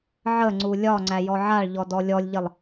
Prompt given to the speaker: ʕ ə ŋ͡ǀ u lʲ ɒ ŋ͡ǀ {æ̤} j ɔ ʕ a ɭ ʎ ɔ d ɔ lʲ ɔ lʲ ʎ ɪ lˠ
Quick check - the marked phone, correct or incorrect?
incorrect